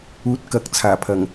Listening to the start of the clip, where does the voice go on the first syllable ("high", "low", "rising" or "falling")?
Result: rising